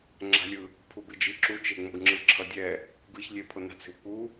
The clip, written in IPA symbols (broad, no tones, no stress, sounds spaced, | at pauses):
ŋ͡ǁ a̤ lʲ ɯ | pʰ u b i d͡ʒ i ǁ u t͡ʃ e ŋ͡m o ɡ ŋ͡ǁ ɯ ǁʰ ʌ dʲ ɛ | ɡ ɯ ç lʲ e pʰ o n a̤ t͡s e̤ w k͡p u